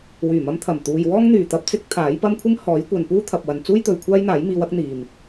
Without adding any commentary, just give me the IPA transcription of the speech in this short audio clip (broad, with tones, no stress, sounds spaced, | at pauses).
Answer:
w yː˨˩ m ɐ˧ m t̪ʰ ɐ˨˩ m t̪ uː˨ j w ɔː˥ ŋ n̪ yː˨˩ t̪ ɐ˧ p̚ t͡s ɪ˥ k̚ t̪ʰ aː˨˥ j p ɐ˥ m kʷʰ ɪ˥ ŋ h ɔː˨˥ j kʷ ɐ˨ n p uː˥ t̪ʰ ɐ˨ p̚ w ɐ˨ n t͡s uː˥ j t̪ ɵ˨ ɥ kʷʰ aː˥ j n̪ aː˨˥ j m iː˧ w ɐ˥ k̚ n̪ iː˨ m